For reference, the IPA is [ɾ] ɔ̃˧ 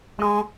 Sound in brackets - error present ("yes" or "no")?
no